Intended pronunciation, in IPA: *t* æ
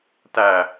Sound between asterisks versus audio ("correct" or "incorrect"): correct